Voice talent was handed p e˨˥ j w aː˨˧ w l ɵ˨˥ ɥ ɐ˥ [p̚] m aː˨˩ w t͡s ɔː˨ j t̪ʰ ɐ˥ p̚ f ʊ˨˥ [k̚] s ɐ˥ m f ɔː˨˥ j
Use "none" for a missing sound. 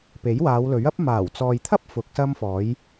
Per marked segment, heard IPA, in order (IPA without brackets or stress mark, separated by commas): p̚, k̚